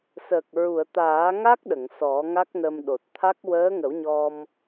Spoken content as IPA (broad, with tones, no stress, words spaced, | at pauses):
sə˨˩k̚ ɹu˨˩˨ə̯t̪aː˨˩˦ŋa˦˥k̚ ɗə˨˩˨ŋsɔ˨˩˦ ŋa˦˥k̚nə˧mɗo˨˩t̚ t̪ʰa˦˥k̚ wəː˧˥ŋə˨˩˦wɲɔ˧m